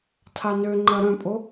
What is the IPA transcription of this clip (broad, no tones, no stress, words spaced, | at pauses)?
tʰanøŋ͡ǃɐ ɾœ̃pʼo